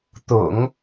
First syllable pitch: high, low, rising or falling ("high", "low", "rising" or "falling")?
low